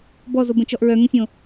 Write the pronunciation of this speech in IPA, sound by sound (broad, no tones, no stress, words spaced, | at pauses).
bɔzobə̃t͡ʃɔʔ ɹœŋə̃sʲõ